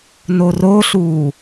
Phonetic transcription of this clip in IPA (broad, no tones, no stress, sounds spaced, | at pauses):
n o r o ɬ uː